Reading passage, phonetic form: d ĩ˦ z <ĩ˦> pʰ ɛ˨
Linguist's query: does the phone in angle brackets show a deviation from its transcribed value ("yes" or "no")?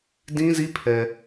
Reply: yes